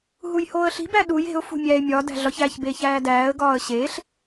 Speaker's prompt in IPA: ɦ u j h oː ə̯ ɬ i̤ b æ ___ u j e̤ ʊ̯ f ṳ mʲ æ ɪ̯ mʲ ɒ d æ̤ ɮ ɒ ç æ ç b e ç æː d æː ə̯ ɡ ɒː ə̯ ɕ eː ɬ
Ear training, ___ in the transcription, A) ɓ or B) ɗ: B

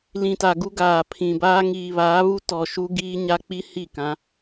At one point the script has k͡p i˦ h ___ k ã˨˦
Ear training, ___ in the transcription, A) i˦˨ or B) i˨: A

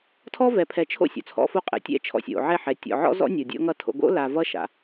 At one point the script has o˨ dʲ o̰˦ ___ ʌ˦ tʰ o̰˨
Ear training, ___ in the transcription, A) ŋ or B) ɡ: A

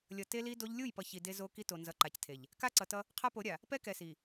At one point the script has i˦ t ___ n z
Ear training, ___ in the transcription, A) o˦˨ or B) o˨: B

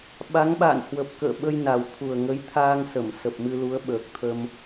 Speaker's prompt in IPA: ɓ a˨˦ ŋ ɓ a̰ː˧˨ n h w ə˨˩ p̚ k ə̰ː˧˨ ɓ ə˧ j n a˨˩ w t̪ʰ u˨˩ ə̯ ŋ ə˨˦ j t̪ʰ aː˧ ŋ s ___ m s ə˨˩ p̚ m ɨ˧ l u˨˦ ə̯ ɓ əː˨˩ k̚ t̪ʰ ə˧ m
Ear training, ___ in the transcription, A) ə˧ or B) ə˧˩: B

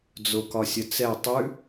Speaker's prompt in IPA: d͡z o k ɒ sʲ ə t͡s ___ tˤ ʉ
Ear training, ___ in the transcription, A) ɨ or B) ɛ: B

